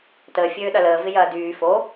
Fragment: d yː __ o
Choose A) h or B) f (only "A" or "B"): B